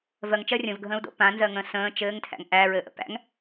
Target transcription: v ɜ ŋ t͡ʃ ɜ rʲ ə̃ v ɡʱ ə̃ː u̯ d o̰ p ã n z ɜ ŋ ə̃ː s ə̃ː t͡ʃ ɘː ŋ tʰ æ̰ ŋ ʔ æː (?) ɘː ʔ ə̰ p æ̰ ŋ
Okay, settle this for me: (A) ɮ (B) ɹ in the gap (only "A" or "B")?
B